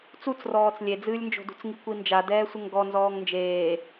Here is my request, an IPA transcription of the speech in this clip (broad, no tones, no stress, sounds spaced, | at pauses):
t͡s u t͡s r ɔː t͡s lʲ e d͡z ɨː lʲ n d͡ʒ o̤ d ṳ t͡s ŋ i kʷ i n d͡ʒ a d ɛː sʷ ɘ ŋ ɡ ɔ n z ɔː ŋ n d͡ʒ eː